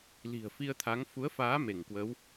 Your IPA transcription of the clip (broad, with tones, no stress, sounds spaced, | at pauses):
l i̤˨˩ ə̯ f i˧ ə̯ t̪ʰ a˨˦ ŋ f u˨˦ ə̯ f aː˨˦ m e˧˩ ŋ k w ə˨˦ w